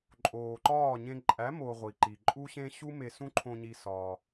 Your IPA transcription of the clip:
ǃʼ oː˨ ǃ ɒː˦˨ ɲ ẽ˧ ǃʼ æ˨˦ m o˨ ʁʷ i˨ ǃ i˨ ǃʼ u˦ ɕ ẽ˦ ɕ u˦ m e˧ s ũ˦ ǃʰ õ˧ ɲ i˧ s ɒː˧

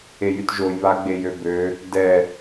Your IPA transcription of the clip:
e j y t ʒ o j β a ɡ͡b e j ø b ø | d ɛ

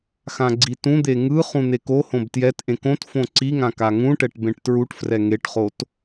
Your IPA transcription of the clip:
x ã ɡ͡ǀ i t ũ d̪ e ŋ ɯ χ ũ n̪ e k o h õ b t j ɛ t ʔ ẽ k õ t f õ ǀ i ŋ ã k a ŋ ũ ʈ ɛ ʈ b ẽ ʈ t ɹ u ʈ f r ɛ ŋ e ʈ χ o t

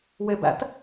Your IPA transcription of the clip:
w e b æ̰ t

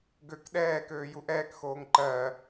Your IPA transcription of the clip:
ɡ ø k ɗ ɛː k øː j u ʔ ɛː k x oː ŋ ǃ ɜ

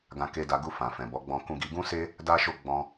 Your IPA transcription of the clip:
ɡ ã˧ k e˧ d a˧ ɡ u˧ f ã˨ f ɛ̃˨ b ɔ˨˦ ɡ͡b ɔ̃˧ k ũ˧ ɡ i˧ ɡ ũ˦ s e˦ | d a˦ ʃ o˦ ɡ͡b ɔ̃˧

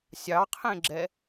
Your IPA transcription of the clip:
sʲ ɑ qʰ ẽ ɡ͡ǁ ɛ

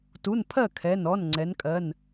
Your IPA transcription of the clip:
t u˩˧˩ n pʰ ɜ˥˩ kʰ ɛ˩˧˩ n ɔ˩˧˩ n ŋ͡ǀ ɛ˩˧ n kʼ ɜ˩˧˩ n

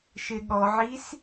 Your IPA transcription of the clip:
ʃ ɪ ɠ ɔ ʕ i s

